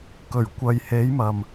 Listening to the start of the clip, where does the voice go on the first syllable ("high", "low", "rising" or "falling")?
low